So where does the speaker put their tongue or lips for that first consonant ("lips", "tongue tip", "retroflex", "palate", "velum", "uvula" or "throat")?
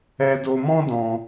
tongue tip